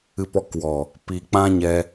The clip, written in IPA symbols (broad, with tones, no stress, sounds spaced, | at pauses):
ɨ˨ p ɔ˨ k w ɔ˨ | p i˧ k͡p ã˦ ɲ ɛ˧